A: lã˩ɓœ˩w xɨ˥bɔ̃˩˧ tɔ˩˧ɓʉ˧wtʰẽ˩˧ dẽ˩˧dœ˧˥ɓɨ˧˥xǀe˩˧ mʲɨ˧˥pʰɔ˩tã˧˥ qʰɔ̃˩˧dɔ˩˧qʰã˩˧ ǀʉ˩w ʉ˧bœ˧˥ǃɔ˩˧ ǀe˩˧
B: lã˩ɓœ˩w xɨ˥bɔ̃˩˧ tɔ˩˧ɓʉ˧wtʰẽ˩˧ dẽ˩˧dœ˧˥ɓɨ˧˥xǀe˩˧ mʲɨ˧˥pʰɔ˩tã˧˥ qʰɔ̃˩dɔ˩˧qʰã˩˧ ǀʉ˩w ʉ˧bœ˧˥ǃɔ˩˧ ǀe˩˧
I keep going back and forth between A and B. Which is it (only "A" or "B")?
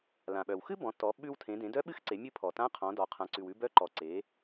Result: A